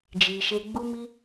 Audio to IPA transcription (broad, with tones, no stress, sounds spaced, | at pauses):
d͡ʒ iː˧ ʃ e˦ ɡ͡b u˦ m i˦